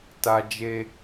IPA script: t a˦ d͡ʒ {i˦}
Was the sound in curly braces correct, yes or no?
no